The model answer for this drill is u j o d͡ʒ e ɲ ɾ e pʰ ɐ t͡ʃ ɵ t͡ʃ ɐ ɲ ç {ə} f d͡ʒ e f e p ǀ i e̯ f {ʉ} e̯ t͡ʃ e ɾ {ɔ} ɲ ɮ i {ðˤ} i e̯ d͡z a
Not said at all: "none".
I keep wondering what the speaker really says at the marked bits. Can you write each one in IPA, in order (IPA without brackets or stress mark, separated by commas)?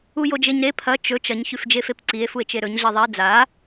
ʉ, u, ɵ, ðˤ